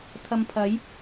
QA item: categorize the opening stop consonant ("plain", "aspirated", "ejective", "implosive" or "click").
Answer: aspirated